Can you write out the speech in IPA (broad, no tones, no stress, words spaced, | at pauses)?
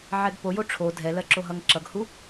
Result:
ʕɛɡpojo ʈ͡ʂʰo dʱɛlɜǁo ɦʌŋǁʌɡhu